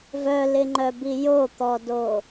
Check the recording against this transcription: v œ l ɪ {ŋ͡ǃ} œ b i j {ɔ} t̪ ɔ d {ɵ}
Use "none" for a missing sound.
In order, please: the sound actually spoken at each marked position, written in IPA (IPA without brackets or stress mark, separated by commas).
ŋ͡ǃ, o, o